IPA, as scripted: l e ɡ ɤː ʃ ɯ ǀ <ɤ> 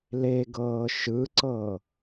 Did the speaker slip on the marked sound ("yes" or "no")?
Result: no